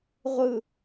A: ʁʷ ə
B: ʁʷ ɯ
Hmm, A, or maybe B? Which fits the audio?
B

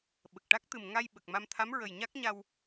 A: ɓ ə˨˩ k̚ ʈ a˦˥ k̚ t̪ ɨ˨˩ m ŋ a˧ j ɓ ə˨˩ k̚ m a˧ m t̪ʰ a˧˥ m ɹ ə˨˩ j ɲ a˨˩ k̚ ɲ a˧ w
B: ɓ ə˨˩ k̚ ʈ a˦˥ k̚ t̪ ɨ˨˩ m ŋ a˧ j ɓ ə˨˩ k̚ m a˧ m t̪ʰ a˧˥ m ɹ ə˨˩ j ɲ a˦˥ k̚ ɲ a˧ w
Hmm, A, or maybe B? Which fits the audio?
B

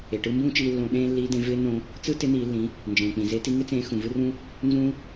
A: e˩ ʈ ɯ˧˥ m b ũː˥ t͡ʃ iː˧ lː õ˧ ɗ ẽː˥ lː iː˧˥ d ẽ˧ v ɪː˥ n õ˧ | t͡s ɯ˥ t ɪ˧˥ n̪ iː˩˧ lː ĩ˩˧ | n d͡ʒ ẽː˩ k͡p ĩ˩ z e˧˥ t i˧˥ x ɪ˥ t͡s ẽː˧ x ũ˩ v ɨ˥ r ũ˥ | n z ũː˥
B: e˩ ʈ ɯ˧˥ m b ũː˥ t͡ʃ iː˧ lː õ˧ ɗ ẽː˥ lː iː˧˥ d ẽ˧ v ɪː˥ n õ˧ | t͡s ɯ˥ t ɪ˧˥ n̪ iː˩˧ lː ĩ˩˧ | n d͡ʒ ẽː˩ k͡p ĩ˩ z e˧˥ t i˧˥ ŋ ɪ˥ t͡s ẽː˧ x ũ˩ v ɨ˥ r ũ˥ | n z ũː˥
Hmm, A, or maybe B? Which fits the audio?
B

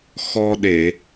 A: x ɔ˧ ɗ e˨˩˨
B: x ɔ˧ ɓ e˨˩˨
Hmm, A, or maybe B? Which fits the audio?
A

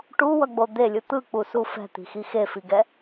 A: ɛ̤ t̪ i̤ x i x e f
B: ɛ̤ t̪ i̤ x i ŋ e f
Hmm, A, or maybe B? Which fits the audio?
A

